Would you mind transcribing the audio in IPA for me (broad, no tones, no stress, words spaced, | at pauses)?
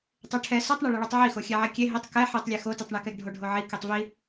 tˤeʈʰɛ sotˤɳɛɭɐɭotˤ ʕixo xʲɛʕɛkʲe ɦitˤ kɛ ħitˤlʲe xotitˤɳekɛɡ ɖʱoɖʱoʕi kitˤvi